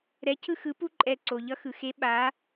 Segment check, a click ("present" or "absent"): present